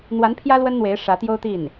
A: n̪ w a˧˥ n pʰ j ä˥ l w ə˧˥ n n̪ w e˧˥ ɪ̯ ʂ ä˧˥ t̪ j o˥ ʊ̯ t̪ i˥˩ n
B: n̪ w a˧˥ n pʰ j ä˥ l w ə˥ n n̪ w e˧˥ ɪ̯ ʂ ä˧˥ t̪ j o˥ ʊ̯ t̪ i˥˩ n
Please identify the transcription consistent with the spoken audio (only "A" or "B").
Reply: B